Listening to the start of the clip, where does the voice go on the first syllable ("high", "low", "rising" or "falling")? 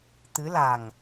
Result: rising